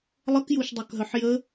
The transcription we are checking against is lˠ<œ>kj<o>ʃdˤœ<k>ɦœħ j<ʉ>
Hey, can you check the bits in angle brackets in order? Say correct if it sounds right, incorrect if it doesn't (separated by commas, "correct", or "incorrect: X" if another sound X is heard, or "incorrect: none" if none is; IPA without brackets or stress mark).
incorrect: ə, incorrect: u, correct, incorrect: ə